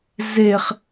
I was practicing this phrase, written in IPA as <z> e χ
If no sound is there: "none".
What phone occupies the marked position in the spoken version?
z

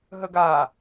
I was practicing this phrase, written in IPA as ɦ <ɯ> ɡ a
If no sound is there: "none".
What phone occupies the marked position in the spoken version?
ə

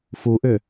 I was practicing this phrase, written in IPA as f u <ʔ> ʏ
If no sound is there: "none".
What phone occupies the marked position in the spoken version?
ʔ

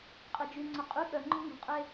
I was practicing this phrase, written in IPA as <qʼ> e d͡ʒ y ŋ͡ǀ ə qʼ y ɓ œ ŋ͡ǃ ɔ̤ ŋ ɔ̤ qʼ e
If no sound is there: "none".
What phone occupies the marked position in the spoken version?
qʼ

